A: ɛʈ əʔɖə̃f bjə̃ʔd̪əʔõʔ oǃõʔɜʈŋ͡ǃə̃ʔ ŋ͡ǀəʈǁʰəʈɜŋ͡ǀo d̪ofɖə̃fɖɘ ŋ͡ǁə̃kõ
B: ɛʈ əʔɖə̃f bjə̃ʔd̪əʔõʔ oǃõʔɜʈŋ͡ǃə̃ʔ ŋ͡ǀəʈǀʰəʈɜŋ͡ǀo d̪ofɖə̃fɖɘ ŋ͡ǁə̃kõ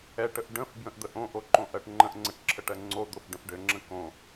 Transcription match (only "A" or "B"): A